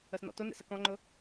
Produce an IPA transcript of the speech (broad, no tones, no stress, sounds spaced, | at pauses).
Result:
ə s n ɔ̰ t ʊ n ḛ s ə k ɔ̃ ŋ͡ǃ ʊ